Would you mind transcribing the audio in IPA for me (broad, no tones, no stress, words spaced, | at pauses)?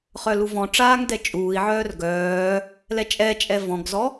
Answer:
χœluvɔ̃ʈ͡ʂaːŋ dɛt͡ʃʼuːi̯ʕœːr ɡœː | lɛt͡ʃʼɛt͡ʃʼɛ vɔ̃ɡzɔ